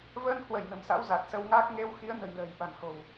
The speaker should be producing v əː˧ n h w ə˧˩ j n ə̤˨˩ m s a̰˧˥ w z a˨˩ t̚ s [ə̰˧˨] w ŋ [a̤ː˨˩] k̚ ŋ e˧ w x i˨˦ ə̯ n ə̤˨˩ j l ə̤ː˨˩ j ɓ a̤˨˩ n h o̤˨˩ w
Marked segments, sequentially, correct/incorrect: incorrect, incorrect

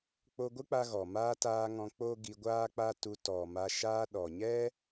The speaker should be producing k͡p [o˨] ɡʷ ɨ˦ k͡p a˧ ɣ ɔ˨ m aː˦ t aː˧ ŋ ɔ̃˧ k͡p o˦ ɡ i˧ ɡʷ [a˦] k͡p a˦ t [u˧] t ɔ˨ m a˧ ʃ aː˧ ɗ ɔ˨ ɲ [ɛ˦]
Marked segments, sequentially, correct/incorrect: incorrect, incorrect, correct, correct

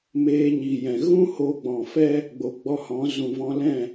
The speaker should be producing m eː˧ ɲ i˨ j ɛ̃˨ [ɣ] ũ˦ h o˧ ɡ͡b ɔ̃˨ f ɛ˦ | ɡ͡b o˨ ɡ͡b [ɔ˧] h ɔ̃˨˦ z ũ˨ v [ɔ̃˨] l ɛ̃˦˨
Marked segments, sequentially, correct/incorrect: correct, correct, incorrect

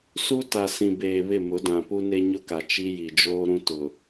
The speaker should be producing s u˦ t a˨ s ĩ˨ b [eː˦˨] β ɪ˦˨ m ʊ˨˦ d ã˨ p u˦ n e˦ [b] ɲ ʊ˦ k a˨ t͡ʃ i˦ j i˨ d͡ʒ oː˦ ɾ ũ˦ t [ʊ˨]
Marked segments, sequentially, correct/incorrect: incorrect, incorrect, correct

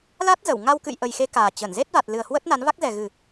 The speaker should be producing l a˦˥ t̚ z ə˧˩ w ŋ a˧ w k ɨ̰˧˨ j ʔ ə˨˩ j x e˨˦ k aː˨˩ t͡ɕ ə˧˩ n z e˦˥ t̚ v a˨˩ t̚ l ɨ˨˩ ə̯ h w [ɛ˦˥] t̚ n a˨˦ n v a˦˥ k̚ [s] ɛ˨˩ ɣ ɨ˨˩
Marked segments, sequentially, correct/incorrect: incorrect, incorrect

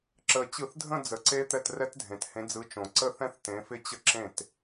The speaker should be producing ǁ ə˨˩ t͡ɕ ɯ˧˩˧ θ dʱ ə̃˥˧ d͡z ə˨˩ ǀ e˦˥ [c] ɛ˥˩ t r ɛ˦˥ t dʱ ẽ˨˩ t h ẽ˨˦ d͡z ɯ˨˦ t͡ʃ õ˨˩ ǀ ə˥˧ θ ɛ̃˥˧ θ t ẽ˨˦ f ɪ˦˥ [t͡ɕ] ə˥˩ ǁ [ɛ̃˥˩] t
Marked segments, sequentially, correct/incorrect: incorrect, correct, incorrect

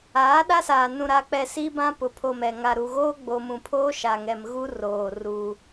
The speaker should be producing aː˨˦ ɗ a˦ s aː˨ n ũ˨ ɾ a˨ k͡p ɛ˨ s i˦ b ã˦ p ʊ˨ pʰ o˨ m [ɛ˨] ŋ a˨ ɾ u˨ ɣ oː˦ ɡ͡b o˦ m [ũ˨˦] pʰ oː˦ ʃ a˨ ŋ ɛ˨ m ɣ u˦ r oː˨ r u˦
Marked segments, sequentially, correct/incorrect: correct, incorrect

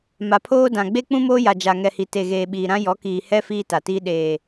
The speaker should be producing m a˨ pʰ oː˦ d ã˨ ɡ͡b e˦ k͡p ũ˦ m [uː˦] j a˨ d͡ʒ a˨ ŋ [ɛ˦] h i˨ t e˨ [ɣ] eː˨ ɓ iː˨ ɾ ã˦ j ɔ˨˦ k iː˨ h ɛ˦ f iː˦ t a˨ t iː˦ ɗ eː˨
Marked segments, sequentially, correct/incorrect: incorrect, incorrect, correct

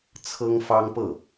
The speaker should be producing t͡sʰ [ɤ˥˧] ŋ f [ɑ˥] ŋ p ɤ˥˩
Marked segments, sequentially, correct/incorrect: incorrect, correct

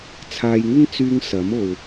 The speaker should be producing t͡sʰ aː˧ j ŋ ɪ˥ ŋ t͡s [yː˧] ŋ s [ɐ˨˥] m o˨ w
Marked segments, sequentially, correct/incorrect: correct, correct

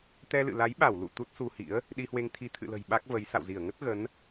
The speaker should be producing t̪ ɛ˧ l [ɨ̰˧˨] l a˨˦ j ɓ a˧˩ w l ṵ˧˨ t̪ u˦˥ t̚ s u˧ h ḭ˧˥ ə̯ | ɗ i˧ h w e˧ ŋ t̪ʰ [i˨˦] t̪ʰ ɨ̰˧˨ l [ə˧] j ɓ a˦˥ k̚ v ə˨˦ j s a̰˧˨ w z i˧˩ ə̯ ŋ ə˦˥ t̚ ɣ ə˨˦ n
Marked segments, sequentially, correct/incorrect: correct, correct, incorrect

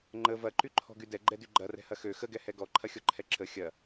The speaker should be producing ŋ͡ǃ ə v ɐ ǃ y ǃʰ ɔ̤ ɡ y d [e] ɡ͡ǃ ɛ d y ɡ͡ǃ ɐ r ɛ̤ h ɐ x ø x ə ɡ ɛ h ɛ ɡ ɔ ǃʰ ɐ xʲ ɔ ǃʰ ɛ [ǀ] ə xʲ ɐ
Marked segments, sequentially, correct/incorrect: incorrect, incorrect

